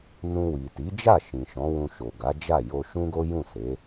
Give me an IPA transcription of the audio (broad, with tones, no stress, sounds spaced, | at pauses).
n ũ˧ w i˨ t i˨˦ d͡ʒ a˦˨ ʃ ĩ˨ ʃ ɔ̃˨˦ w ũ˧ ʃ o˨ ɡ a˨˦ d͡ʒ a˦˨ j o˧ ʃ ũ˦ ɡ o˦ j ũ˦˨ s e˨˦